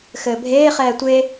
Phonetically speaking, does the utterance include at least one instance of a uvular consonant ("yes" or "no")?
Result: yes